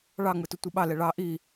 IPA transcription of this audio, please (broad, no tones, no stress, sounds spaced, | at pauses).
ɭ ɑ ŋ͡m ɯ t ʊ tʷ ɯ ɓ ɑ l ɛ ɭ ɑ ʔ i